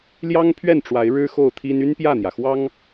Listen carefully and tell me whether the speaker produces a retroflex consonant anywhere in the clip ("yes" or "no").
yes